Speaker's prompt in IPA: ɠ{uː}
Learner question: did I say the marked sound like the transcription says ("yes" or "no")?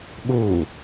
yes